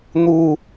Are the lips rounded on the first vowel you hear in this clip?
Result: yes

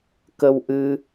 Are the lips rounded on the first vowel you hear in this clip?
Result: no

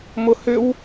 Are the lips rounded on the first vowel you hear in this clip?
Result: yes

